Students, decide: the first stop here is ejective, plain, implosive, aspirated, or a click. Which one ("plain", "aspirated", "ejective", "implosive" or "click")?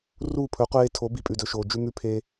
aspirated